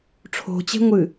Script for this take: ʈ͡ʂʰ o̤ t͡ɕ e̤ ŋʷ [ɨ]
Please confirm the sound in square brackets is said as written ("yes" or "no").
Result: yes